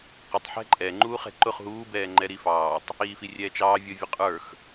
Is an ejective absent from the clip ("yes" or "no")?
no